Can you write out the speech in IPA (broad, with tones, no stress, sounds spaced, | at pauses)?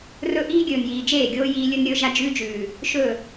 r ɵ˦ ʔ iː˦ ɡʲ ɵː˨ n j iː˨ d͡ʒ eː˦˨ ɡʲ oː˦ j iː˦ lʲ ɵ˦ n ɾʲ ɵː˦ ʒ a˦ d͡ʒ ʉ˦ d͡ʒ ʉː˨ | ʃ ɵ˦˨